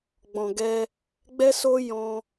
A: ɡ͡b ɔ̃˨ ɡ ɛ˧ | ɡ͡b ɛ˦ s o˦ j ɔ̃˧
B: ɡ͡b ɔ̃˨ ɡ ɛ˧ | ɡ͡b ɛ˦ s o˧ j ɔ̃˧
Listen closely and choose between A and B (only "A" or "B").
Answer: A